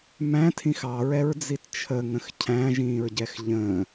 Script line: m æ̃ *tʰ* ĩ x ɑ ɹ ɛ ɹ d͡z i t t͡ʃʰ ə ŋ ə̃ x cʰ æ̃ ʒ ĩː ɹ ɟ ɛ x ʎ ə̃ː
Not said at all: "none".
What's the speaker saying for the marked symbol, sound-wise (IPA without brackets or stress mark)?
tʰ